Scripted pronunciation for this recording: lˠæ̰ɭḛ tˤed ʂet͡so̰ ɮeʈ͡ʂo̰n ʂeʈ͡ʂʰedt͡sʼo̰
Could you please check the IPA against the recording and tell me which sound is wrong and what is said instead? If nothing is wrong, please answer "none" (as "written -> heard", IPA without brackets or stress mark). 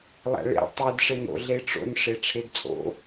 t͡s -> n